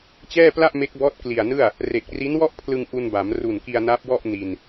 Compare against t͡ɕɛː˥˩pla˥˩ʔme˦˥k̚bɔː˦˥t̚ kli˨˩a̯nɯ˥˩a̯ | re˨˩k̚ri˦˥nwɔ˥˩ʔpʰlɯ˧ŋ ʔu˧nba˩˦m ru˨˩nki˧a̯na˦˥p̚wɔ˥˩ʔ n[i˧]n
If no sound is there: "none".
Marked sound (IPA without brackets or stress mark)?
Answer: i˧